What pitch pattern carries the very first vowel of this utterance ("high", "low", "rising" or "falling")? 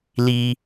low